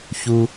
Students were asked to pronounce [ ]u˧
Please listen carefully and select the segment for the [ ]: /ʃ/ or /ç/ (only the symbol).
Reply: ç